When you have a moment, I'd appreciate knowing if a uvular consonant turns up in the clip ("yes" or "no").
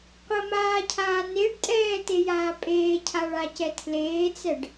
yes